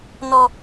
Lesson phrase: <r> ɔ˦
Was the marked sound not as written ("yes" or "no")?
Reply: yes